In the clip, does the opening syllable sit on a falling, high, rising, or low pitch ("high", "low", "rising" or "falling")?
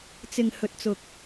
low